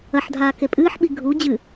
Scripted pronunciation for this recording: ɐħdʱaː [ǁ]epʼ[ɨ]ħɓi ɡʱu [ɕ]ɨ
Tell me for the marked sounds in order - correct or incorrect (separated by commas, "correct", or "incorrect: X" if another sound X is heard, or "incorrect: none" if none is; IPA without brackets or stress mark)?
incorrect: k, incorrect: ɨː, incorrect: d͡ʑ